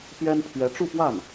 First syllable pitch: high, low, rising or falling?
high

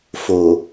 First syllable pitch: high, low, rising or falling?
low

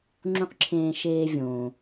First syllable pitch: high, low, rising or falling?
high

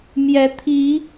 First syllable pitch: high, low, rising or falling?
rising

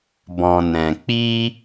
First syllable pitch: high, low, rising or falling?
low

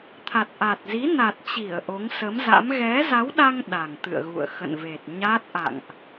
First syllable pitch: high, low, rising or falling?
low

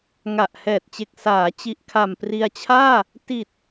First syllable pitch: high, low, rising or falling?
low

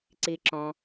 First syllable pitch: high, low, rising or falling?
low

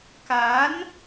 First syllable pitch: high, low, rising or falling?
rising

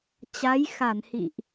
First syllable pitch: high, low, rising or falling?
rising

